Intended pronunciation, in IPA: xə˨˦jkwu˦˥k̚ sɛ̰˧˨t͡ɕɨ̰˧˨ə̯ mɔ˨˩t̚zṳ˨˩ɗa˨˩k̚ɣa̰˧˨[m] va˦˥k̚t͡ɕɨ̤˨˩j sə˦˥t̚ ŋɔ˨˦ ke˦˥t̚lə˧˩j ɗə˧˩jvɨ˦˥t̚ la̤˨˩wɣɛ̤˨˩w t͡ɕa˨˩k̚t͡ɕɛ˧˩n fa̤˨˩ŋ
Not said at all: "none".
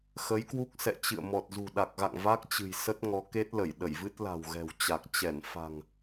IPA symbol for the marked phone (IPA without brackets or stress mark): ŋ